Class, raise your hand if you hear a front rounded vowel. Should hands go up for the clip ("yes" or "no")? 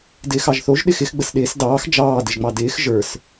no